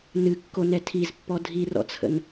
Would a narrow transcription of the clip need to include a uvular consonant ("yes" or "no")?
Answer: no